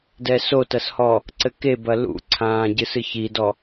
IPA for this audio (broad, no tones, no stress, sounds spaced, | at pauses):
d ɛ s o t ɐ s h ɔ | ǀ ɘ k e b ɐ l ṵ ǀʰ ãː ɟ ɨ s ɨ ç i d ɔ